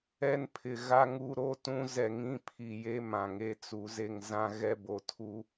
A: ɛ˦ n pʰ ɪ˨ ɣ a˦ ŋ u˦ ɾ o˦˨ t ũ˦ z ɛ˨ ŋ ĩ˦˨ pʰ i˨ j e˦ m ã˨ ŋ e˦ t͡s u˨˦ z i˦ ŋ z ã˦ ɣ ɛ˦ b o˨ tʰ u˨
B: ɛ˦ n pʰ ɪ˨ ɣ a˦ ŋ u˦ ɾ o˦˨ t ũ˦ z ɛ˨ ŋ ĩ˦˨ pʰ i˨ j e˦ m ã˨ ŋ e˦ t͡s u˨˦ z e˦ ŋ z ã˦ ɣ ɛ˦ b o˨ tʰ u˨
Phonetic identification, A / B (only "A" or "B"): B